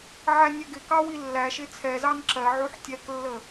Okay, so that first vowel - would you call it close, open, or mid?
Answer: open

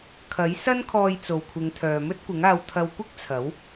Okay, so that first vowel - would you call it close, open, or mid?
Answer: open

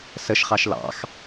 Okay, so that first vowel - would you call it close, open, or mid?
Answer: mid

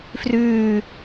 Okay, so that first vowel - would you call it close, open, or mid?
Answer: close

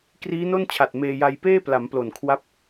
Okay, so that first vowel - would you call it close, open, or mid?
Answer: close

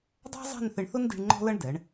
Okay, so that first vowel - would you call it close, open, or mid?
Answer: open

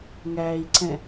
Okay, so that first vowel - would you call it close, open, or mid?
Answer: open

